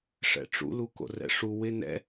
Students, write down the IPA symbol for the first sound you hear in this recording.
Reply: ʂ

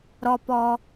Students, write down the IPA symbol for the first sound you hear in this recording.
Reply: ɾ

